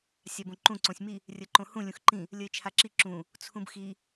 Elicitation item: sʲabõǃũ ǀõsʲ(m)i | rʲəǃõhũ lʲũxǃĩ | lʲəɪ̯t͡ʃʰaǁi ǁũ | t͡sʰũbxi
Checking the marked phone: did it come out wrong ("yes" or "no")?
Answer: no